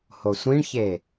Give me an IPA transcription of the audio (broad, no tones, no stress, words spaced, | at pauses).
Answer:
hosʷĩɳçe